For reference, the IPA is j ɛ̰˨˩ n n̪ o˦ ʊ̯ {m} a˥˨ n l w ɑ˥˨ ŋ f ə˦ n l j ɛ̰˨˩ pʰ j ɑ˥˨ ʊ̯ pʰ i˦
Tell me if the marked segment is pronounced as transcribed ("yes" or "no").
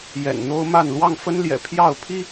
yes